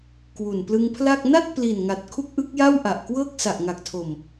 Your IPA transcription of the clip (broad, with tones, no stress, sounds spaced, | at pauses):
k w u˨˩ n p l ɯ˧ ŋ pʰ l a˥˩ k̚ n a˥˩ t̚ p l i˨˩ n ŋ a˨˩ t̚ kʰ u˥˩ k̚ ʔ ɯ˦˥ k̚ j a˥˩ w ʔ a˨˩ ʔ k w ɤː˥˩ k̚ s a˨˩ ʔ ŋ a˨˩ k̚ tʰ o˨˩ m